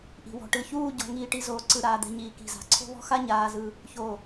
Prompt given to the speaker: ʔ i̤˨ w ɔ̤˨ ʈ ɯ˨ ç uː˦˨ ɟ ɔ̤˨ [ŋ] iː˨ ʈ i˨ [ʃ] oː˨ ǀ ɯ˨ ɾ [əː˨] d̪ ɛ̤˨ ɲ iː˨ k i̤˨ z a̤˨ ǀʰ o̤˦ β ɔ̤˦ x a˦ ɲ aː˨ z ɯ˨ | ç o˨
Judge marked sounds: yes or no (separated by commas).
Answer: yes, no, no